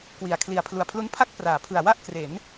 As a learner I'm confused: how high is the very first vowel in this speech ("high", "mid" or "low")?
high